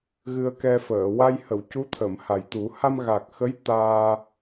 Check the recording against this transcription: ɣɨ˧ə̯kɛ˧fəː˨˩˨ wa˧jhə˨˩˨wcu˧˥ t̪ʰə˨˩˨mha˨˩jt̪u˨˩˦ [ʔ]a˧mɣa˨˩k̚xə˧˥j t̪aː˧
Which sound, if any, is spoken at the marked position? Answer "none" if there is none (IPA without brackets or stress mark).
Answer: h